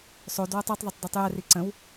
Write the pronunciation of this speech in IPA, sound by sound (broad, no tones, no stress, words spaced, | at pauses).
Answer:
sˤodwotˤ itˤðˤʊtˤditˤ jɛri ǀə̃w